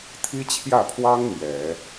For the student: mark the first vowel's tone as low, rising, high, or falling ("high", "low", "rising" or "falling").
high